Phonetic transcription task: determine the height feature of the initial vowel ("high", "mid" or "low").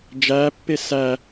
low